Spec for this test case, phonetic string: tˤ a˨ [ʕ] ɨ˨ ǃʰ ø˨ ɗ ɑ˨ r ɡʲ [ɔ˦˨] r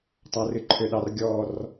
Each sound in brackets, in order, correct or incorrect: incorrect, correct

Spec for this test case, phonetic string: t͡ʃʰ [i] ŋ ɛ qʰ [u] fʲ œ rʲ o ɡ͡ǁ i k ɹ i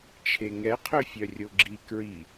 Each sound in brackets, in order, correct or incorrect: incorrect, incorrect

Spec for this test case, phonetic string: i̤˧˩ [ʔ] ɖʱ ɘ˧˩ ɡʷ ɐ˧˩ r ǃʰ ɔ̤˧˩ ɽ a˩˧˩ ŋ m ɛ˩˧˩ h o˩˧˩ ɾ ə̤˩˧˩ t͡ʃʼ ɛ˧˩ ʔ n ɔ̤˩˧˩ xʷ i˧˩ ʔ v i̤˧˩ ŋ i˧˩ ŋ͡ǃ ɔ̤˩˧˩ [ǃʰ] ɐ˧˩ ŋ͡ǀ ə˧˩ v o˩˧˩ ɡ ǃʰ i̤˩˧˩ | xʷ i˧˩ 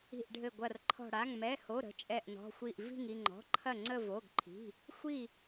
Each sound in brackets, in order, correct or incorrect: correct, correct

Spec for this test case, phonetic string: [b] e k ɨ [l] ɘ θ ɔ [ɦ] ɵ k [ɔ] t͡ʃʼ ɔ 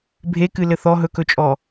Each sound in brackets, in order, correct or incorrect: incorrect, correct, correct, incorrect

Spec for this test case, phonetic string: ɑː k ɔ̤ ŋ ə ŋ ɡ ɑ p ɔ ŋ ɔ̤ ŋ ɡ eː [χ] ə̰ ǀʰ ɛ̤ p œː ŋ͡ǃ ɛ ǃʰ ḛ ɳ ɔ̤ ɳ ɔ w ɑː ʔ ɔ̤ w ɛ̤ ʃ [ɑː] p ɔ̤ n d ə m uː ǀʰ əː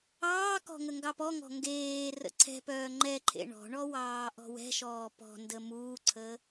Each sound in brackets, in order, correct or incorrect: incorrect, incorrect

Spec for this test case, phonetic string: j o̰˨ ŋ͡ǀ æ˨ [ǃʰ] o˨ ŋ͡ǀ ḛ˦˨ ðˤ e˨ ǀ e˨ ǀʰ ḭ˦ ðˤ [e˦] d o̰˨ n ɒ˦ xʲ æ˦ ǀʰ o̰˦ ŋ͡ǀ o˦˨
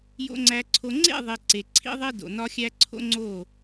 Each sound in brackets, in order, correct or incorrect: incorrect, correct

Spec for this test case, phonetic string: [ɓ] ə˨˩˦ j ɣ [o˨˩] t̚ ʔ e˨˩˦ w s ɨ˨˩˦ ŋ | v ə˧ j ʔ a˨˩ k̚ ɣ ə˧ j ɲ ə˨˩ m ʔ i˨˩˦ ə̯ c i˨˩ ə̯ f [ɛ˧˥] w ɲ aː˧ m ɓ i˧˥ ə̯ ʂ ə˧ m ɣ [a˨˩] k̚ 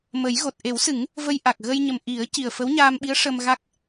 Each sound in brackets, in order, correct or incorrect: incorrect, correct, incorrect, incorrect

